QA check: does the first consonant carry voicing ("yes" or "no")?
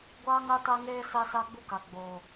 yes